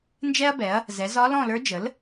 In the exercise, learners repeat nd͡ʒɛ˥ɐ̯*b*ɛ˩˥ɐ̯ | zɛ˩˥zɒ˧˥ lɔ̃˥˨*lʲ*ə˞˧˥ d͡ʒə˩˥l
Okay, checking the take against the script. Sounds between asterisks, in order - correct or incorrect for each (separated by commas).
correct, incorrect